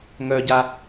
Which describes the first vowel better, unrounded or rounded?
rounded